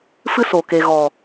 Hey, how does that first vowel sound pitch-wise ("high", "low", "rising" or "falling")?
high